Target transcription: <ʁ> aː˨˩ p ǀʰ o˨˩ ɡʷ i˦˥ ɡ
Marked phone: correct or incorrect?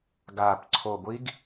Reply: incorrect